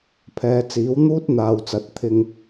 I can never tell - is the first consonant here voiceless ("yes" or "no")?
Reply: yes